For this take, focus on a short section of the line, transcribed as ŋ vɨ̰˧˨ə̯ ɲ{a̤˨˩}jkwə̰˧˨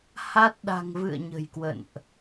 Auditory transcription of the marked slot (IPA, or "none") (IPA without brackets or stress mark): ə̤˨˩